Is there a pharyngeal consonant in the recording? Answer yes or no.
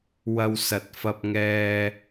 no